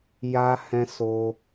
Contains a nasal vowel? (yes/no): yes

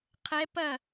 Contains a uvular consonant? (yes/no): yes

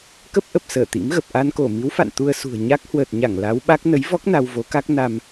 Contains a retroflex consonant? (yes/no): no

